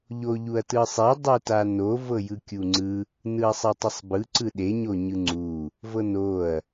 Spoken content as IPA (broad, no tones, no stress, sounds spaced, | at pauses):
ʎ o ʎ u ɐ̯ t ɯ sˤ i dˤ u t a n o v ɤ j ɯ kʲ u ŋ͡ǀ ɯ | n ɯ ɐ̯ sˤ e tˤ e sˤ b ɯ ǀ ɯ ɗ e ɲ o ɲ ɯ ŋ͡ǀ u | v ɤ n o ɐ̯